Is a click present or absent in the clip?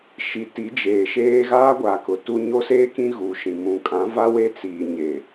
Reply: absent